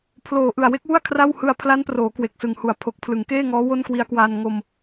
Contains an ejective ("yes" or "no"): no